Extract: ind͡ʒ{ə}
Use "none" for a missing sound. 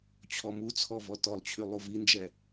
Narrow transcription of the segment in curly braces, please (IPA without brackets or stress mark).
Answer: ɛ